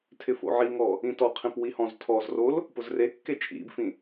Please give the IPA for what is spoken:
tʰ ɪ f o̰ ʕ i ŋ ɔ | ĩ t ɔ qʰ ĩ p w i h ɔ̃ z tʰ ɔ z r o l | p ʊ z r e kː e t͡ʃʼ ḭ b f ĩ

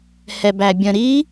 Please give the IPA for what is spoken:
h ɛ b æ bʲ ə̃ ɾ i

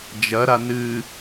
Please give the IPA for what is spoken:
d͡ʒ ɐ ɾ a n ɨ

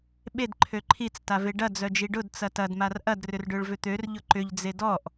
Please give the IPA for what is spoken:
ɓ e d ǃʰ ø ǃʰ i t͡s t a v e ɖ ɐ d͡z œ d͡ʒ i ɖ ʊ d t͡s ɐ t ɐ d m a r ʔ ɐ d r ʏ r ɖ ø ɭ v ʏ t̪ ø r ʎ ʊ ǃ ʏ ʎ d͡z e d ɔ ʔ

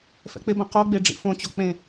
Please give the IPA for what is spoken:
f ɛ̰ k͡p ɪ b ɐ̃ q o ɡ͡b e ɖ͡ʐ ḭ f õ t͡ɕ o k͡p ẽ

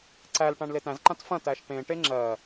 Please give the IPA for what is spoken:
ǀ æ l ʈ ã ɳ l e t æ̃ z ǃ ã t f ɐ̃ t æ ʃ ʈ ẽ ʈ e ŋ͡ǁ ɜ

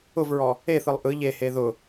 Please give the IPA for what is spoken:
ʊ v ɹ ɔ | e θ ɯ lˠ ʔ ɯ ʎ e h e ð ʊ

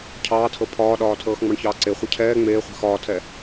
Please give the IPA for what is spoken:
cʰ ɑː tʰ ɤ pʰ ɒː ɗ ɒː tʰ ɤː x ŋ͡m ɑ ɳ ç ɑː ǀ e χʷ e cʰ ɛː ŋ͡m eː χʷ ɛ̤ x ɒː tʰ ɛ

